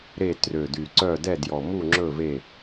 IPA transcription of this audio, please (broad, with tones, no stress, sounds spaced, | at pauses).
ɾ e˦˨ t r ø˨˩ d y˨˩ ǀ œ˦˨ d ɛ˦˨ d j ɔ˨˩ m u˦˨ ŋ͡ǁ ɵ˦˨ v e˦˨